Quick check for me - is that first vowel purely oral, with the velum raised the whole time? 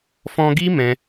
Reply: no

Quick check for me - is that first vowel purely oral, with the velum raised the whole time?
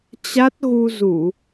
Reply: yes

